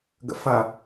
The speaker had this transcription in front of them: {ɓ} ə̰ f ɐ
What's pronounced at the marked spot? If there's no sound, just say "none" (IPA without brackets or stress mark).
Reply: ɡ